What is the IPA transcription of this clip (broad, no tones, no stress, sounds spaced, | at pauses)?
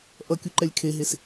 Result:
ʔ ʌ kʲ u ǃ ɛ lʲ kʰ e ɦ e s